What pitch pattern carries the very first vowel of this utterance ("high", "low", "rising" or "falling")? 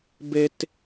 high